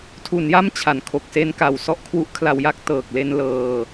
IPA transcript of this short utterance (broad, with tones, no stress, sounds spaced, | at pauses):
tʰ u˩˦ n j a˧ m t͡ɕʰ a˩˦ n kʰ o˨˩ k̚ s e˧ n k a˨˩ w s ɔ˥˩ ʔ kʰ w u˦˥ ʔ kʰ l a˧ w j a˥˩ k̚ t ɤː˨˩ k̚ l e˧ n l ɤː˧